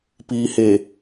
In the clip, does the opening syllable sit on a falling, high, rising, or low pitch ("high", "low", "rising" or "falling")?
low